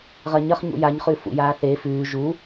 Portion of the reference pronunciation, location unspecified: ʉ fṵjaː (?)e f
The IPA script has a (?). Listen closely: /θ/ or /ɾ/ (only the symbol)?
θ